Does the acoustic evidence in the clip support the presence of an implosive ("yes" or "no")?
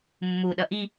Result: yes